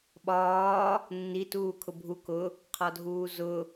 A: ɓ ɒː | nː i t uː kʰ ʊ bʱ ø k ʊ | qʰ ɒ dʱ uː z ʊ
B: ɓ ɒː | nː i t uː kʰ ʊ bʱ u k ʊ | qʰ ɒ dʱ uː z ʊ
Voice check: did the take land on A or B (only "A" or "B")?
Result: B